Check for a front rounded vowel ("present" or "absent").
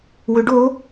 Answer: present